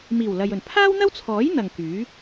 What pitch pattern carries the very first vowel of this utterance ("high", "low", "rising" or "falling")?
low